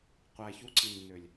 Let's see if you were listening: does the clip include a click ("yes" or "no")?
yes